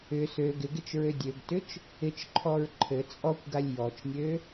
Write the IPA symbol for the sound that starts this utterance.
ʏ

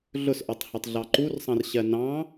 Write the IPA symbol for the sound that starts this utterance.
ɮ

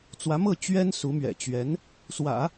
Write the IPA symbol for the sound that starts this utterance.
t͡s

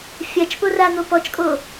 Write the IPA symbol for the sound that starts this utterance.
fʲ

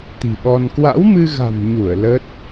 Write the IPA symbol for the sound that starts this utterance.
t̪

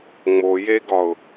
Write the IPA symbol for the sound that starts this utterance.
ŋ͡m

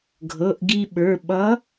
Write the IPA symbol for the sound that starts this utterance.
ɡʱ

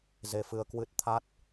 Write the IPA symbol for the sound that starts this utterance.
z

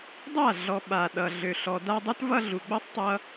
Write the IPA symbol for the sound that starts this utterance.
dˤ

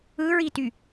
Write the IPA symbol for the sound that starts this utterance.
ɯ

